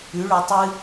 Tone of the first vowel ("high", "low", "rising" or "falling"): rising